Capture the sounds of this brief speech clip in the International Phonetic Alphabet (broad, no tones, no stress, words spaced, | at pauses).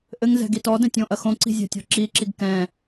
ʔɘŋ zɛ̤ɡitɔdɛ̃ tʲõʔɐxõǀi̤ zʲɛ̤tʲɔ̤ǁiǁiɡ kɛ̃